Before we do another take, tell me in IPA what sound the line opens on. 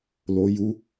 l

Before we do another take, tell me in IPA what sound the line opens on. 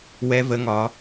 w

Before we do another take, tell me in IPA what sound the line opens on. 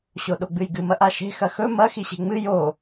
ɕ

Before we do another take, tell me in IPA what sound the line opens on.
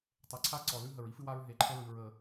tˤ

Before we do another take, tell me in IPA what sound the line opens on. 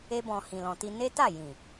e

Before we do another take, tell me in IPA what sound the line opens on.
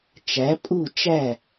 t͡ʃ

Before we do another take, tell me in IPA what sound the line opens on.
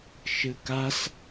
ʃ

